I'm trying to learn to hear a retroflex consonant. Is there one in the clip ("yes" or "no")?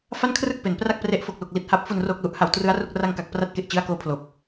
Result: no